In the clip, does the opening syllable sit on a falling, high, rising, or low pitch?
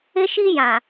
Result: high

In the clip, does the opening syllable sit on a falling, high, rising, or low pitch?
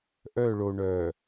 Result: falling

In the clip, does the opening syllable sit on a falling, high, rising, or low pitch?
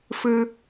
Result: high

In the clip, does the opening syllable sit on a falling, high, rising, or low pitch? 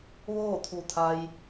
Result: falling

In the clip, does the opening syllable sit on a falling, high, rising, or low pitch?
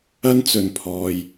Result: high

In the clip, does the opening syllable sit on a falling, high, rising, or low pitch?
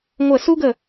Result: falling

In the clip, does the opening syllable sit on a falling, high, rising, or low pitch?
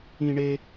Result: high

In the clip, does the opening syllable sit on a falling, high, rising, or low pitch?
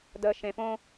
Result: low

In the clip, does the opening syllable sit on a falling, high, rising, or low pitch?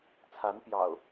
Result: rising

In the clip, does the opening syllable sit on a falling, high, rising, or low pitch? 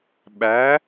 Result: rising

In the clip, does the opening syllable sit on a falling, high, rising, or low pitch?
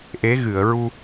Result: rising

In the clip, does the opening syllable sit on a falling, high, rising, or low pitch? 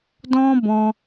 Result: high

